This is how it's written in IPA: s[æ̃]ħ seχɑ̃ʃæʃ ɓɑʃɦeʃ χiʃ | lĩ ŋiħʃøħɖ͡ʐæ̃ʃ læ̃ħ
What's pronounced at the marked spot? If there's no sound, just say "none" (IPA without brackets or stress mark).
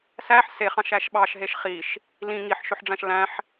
æ